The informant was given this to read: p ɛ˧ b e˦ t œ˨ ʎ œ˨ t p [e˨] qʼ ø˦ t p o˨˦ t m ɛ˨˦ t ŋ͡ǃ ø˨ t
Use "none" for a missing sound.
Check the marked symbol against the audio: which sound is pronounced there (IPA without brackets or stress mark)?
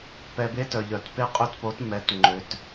e˦